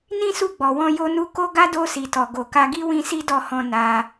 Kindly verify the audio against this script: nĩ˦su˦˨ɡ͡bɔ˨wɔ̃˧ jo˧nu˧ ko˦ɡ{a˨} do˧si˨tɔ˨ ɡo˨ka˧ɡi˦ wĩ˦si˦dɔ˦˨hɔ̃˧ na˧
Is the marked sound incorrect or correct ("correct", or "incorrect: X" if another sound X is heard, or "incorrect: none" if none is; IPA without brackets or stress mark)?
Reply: incorrect: a˦